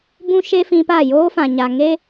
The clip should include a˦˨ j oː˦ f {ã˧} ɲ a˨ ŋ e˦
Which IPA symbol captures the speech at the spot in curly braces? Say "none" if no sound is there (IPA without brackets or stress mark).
ã˨